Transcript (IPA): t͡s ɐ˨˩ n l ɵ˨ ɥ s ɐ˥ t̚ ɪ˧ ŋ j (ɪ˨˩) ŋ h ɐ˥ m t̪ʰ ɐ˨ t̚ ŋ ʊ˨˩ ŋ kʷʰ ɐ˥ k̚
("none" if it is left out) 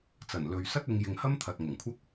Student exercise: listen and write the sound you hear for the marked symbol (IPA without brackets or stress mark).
ɪ˨